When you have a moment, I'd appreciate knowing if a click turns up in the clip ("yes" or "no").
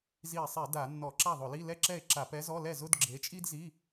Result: yes